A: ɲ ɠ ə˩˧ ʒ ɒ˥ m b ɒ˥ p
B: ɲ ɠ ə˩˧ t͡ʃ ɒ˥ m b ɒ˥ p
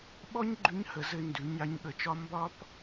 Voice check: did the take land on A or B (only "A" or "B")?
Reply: B